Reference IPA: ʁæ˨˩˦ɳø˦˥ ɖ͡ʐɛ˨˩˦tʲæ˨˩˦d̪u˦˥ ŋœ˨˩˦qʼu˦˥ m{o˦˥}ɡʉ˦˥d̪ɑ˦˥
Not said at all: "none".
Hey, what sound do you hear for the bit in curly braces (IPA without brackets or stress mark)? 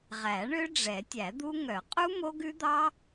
o˦˥